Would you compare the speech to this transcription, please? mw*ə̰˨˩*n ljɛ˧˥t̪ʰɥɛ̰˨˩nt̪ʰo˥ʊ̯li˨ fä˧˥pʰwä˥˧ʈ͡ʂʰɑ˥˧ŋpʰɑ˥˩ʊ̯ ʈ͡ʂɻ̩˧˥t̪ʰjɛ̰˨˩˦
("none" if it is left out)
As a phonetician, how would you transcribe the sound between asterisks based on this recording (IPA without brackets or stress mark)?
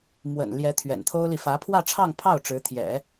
ə̰˨˩